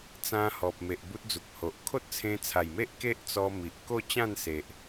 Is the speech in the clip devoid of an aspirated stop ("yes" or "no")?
no